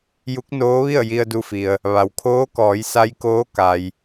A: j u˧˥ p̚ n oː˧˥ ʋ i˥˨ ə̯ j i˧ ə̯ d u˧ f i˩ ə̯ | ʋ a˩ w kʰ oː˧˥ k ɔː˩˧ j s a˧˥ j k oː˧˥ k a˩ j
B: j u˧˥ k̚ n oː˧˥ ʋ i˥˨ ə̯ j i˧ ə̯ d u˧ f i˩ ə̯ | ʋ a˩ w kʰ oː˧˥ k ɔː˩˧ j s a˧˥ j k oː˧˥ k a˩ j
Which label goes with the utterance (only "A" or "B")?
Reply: B